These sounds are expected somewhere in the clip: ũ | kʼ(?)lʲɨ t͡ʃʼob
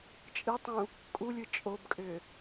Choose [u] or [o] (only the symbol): u